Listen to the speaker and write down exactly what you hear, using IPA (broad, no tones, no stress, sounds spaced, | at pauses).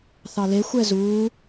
θ ɑ l e xʷ ɛ z uː